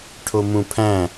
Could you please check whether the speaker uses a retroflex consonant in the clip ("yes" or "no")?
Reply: yes